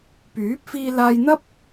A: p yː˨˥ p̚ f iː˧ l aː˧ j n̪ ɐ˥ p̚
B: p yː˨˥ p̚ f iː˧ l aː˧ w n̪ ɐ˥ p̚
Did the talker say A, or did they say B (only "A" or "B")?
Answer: A